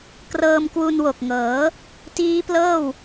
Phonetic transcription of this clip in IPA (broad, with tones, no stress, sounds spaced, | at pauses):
k r ɤː˧ m k w u˧ n w o˨˩ k̚ ŋ ɤː˩˦ | t iː˦˥ p l ɤː˥˩ w